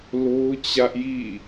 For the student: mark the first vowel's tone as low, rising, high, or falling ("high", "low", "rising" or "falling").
high